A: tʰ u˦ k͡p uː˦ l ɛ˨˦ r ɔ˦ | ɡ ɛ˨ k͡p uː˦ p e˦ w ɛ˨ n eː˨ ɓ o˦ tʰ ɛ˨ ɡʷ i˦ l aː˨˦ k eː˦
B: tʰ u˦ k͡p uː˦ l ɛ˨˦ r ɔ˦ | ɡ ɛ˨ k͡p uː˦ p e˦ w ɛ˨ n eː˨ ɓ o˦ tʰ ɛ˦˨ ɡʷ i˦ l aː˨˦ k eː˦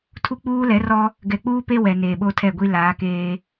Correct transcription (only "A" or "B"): B